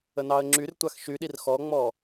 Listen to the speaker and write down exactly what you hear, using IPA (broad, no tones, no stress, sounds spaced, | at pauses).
ə n ɑ ə̯ ŋ͡ǁ y r tʷ a x ʃ y ɗ i r x ɔ ŋ͡m ɔ